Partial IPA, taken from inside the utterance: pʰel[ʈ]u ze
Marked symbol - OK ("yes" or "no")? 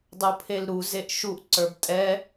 no